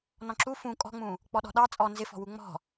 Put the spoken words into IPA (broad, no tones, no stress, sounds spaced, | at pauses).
n ɔ̃ ǁ u f ũ kʼ ɔ̤ ŋ͡m ũ | k͡p ɔ ɗ ɔ̤ ɗ ɑ t͡sʼ ɔ n z ɪ f ɔ̤ w u ŋ͡m ɔ̤